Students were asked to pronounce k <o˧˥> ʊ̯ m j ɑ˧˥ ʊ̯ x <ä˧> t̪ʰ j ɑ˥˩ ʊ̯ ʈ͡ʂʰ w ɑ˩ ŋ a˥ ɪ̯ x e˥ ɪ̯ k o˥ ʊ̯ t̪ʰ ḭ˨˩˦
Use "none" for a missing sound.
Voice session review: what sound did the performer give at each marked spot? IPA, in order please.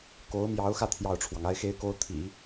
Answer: o˧˥, ä˧

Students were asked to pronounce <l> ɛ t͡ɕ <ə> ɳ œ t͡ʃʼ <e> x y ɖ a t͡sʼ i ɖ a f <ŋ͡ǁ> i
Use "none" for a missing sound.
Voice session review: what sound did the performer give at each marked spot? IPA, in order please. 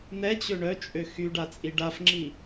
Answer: n̪, ø, ø, ŋ͡ǁ

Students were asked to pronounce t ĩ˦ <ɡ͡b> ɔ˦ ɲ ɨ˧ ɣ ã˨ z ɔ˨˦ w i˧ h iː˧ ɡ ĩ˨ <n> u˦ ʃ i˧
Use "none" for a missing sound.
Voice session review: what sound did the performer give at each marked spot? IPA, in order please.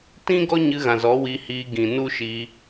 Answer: ɡ, n

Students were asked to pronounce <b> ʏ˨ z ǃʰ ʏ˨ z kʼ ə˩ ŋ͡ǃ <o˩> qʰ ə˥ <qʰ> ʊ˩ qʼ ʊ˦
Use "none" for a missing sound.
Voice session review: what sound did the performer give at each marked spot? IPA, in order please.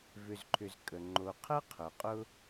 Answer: v, o˩, qʰ

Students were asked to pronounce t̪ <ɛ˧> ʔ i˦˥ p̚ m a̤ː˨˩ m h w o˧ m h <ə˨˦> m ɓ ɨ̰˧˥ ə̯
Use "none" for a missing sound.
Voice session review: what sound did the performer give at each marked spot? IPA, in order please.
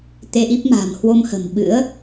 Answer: e˧, ə̤˨˩

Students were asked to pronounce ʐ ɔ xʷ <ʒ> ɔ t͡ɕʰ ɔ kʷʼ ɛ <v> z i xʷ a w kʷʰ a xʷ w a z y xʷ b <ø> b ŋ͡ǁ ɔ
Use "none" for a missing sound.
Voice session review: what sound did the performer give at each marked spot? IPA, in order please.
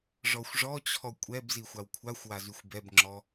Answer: ʐ, b, ɛ

